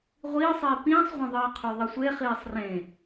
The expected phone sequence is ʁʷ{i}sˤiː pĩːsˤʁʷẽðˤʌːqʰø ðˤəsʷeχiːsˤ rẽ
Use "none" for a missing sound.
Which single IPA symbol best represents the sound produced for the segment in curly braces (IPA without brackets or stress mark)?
iː